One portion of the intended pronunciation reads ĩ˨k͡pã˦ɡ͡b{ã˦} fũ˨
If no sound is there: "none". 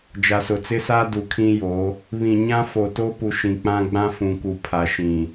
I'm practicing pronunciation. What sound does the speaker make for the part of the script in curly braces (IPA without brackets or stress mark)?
ã˦